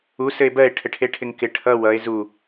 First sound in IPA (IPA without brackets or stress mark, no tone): u